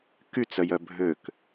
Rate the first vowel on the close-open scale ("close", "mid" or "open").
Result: close